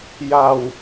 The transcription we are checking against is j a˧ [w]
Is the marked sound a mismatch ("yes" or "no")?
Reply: no